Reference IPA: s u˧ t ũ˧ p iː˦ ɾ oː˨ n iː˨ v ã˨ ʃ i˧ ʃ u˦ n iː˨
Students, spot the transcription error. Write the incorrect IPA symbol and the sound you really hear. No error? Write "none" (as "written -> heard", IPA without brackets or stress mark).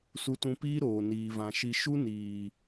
none